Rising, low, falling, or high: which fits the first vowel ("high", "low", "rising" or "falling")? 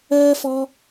high